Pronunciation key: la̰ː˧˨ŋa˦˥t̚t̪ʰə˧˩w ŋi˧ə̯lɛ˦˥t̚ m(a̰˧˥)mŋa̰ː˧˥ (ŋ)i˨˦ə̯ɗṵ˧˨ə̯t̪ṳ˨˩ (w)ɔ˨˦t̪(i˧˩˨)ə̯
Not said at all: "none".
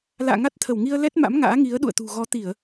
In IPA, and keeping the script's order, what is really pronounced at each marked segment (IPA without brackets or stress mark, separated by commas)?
a̰˧˥, ŋ, ɣ, i˧˩˨